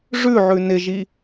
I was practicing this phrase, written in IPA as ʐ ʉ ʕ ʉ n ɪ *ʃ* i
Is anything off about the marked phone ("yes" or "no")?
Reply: yes